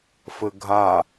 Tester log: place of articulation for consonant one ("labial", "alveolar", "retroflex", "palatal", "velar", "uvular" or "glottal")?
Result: labial